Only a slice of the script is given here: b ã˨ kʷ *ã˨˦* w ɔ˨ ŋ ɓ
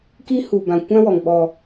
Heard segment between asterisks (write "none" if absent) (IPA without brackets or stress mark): ã˦